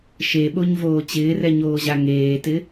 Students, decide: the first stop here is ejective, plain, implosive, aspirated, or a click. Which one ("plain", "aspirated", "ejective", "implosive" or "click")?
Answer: implosive